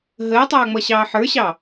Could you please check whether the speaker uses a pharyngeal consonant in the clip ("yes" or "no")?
yes